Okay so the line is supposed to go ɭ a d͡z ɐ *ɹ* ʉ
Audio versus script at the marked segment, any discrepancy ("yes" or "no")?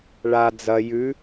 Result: yes